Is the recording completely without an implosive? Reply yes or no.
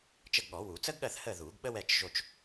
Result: no